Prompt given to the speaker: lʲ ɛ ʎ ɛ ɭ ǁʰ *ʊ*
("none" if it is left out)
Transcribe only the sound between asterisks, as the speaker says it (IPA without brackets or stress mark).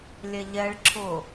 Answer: ʊ